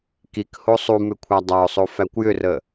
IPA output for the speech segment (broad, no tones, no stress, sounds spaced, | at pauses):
k i k h o sˤ u m ʏ kʷʰ a dˤ a ʊ̯ sˤ o f æ kʷ j ʏ r ə